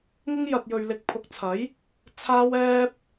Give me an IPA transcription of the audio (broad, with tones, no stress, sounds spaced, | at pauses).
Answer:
ŋ ɪ˥ ŋ j ɐ˧ t̚ j ɵ˧ ɥ l ɪ˨˥ k̚ pʰ ʊ˨ k̚ t͡sʰ ɐ˨˥ j | t͡sʰ aː˥ w ɛː˥ p̚